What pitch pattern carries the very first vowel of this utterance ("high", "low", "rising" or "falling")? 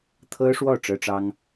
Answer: high